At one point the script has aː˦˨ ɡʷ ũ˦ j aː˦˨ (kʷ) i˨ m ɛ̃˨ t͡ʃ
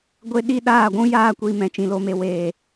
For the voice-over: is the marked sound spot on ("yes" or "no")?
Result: yes